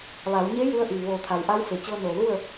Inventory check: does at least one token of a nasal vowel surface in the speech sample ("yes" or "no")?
no